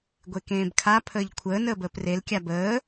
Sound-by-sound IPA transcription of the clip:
ɡʷ e k ẽː b kʰ a pʰ əː ʎ kʷʰ əː n əː b əː p r e l kʲ a b əː

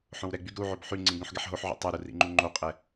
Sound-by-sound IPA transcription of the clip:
ħ õ w ɾ ɛ ɡ͡b y ɡ ɾ u ʕ o b ħ y ŋ͡ǀ ĩ ɡ ɾ ũ ħ ɡ ɛ ħ ɦ o ħ ʕ o̰ tˤ ɛ ɾ u r ḭ ŋ͡ǃ u ŋ͡ǃ o qʼ ɛ

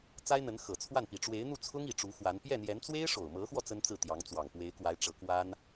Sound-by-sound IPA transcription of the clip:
t͡s a˥ ɪ̯ n̪ ə˧˥ n x ɤ˨˩ t͡sʰ w a˥˩ n p i˨˩ ʈ͡ʂ w e˧˥ ɪ̯ n̪ u˥˩ t͡sʰ ʊ˥ ŋ i˨˩ ʈ͡ʂ u˧˥ x w a˧˥ n p j ɛ˥˩ n̪ j ɛ˧˥ n t͡s w e˥ ɪ̯ ʂ o˨˩ ʊ̯ m ɤ˧˥ x w ɔ˧ t͡s ə˥ n t͡s ɹ̩˥˩ t̪ j ɑ˧˥ ŋ t͡s w ɑ˨˩ ŋ p w e˧˥ ɪ̯ k w a˧˥ ɪ̯ ʈ͡ʂ ɤ˧˥ k w a˥ n

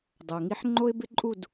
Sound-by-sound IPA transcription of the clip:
dˤ o˩ ŋ i˧ ħ ŋ͡ǃ o˥ ɪ̯ b ɪ˥ ǃʼ u˥˩ d

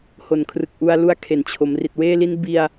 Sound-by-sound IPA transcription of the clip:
h o˨˩ n kʰ r ɯ˨˩ k̚ ʔ u˧ a̯ l u˦˥ a̯ kʰ e˨˩ n t͡ɕʰ o˩˦ m r i˨˩ t̚ w eː˥˩ l i˦˥ n b i˧ a̯

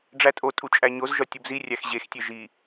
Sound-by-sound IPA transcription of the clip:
ɖ͡ʐ æ tʼ o tʼ u t͡ʃʼ æ ɲ o z ʒ ɒ tʲ u b z i rʲ æ x ʑ e x tʲ e ʒ i

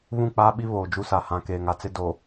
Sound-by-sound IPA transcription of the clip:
β ũ˦˨ k͡p aː˦ ɓ i˦ β oː˨ d͡ʒ u˦ s a˨ h ã˨ k eː˨ ŋ a˨ t͡s ɪ˦ d o˨

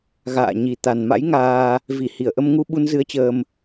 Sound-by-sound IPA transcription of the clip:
ɣ a̰ː˧˨ ɲ i˨˩ t̪ a˨˩ n m a̰˧˥ j ŋ aː˧ | v i˧˩ h i˧˩ ə̯ ʔ ə˧ m ŋ u˧ ɓ u˧ n z ɨ˧ ə̯ t͡ɕ əː˧ m

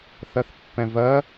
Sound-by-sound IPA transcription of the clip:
θ ɜ θ pː ɛ̃ v ɜ

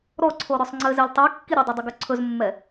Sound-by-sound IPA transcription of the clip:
ɾ ɔ ǀʰ o ɾ ɵ sˤ ŋ͡ǀ ɘ z ɛ lʲ tˤ i kː i ɾʲ ɵ dˤ o dˤ ʏ ɡ ɵ ǀʰ ɵ z mː ɛ

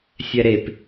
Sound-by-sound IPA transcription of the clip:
sʲ ɛ ɾ e p

